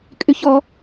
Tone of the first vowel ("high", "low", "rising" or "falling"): high